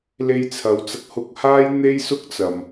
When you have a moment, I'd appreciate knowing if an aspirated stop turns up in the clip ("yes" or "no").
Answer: yes